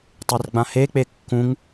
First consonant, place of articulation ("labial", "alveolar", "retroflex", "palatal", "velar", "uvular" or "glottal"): alveolar